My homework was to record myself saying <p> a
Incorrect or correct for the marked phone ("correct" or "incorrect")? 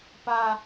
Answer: correct